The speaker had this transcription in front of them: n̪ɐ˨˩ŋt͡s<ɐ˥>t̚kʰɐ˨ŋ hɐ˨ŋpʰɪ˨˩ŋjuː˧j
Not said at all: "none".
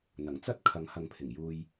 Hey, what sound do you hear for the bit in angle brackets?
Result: ɐ˥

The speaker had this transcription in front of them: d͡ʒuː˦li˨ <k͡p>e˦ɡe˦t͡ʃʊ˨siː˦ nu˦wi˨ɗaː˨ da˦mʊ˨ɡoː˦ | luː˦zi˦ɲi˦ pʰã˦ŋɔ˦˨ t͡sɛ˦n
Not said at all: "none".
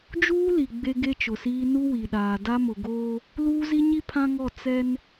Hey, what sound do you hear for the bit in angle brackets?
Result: ɡ͡b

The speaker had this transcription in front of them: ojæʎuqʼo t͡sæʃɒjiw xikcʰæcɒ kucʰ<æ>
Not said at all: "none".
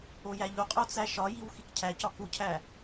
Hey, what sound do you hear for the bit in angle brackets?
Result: æ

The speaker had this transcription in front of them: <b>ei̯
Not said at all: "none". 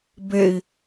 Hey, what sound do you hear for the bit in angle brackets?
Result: b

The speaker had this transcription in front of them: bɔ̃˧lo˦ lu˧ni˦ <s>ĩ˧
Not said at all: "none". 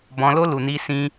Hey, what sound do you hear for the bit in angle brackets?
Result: s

